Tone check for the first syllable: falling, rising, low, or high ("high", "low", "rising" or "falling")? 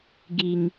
low